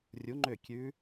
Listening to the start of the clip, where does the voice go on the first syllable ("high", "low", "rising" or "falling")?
rising